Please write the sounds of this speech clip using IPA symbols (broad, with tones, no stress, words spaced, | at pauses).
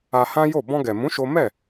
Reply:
a˧hã˦jo˦˨ bɔ̃˧ɡɛ˨mũ˨˦ ʃo˦ mɛ˦˨